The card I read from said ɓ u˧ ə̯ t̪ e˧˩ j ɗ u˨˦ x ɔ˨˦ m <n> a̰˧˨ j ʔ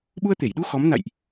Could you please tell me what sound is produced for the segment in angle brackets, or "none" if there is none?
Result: n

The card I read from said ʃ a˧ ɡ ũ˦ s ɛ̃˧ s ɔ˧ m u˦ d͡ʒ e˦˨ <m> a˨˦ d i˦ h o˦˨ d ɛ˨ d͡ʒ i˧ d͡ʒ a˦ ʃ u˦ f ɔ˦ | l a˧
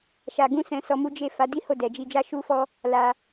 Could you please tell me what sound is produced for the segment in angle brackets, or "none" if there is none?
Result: f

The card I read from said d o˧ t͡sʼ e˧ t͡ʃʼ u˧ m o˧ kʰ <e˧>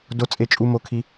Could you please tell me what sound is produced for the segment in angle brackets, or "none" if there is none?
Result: i˧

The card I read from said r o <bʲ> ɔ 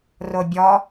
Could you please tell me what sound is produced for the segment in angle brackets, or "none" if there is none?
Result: bʲ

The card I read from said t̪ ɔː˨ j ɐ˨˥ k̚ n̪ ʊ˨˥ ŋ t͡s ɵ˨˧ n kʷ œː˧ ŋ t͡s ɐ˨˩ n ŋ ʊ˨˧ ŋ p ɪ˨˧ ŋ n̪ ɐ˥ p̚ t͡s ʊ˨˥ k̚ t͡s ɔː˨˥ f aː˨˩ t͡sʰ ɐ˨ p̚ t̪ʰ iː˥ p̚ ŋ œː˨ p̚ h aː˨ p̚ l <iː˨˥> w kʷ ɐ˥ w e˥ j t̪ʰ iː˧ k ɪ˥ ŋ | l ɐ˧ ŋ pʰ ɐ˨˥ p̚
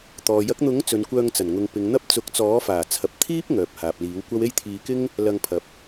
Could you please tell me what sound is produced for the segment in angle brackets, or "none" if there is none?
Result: iː˨˥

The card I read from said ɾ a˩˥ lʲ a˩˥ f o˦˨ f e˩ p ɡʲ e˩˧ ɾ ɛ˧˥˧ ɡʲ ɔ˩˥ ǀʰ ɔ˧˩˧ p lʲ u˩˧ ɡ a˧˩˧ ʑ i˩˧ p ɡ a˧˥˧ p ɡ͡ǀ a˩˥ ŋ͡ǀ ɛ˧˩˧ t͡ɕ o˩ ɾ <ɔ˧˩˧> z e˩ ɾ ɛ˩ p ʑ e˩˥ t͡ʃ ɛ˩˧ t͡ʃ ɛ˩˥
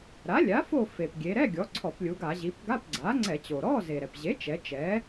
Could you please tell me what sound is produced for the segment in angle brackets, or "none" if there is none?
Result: ɔ˧˥˧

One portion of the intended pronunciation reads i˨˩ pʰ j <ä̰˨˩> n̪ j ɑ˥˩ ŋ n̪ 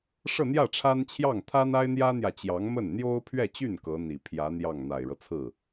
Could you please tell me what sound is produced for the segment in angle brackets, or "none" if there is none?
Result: ä˧˥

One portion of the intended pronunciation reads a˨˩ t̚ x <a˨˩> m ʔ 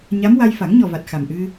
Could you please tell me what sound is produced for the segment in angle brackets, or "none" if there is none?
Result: a˨˩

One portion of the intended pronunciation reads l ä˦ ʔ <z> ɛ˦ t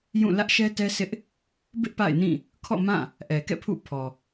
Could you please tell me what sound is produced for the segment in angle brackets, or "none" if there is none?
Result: ʃ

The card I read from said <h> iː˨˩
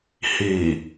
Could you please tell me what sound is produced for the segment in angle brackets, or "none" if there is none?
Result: h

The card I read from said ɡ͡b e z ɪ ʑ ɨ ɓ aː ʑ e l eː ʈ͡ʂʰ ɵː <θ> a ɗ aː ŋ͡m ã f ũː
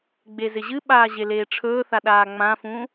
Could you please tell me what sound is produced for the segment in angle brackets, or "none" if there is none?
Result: θ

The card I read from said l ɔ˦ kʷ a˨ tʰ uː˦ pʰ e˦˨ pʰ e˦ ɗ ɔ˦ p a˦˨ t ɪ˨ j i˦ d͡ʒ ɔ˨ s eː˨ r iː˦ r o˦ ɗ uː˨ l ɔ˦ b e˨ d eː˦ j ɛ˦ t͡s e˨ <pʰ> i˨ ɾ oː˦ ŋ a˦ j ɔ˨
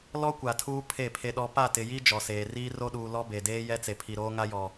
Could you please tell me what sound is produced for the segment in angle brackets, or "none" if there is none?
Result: pʰ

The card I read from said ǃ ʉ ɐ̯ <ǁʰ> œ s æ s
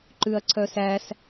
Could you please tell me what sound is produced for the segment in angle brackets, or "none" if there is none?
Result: ǀʰ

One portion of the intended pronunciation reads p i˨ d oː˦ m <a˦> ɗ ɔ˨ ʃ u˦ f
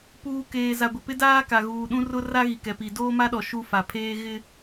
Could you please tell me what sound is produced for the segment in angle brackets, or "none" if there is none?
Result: a˦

